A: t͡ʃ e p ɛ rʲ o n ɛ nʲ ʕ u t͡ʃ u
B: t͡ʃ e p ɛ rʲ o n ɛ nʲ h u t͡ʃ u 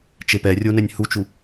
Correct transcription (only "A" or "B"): B